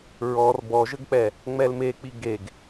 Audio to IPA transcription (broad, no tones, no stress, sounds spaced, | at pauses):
ɹ ɔ r b ɔ ʒ ə ɡ k͡p ɛ | ŋ͡m ɛ l m e k͡p i ɡ e ɡ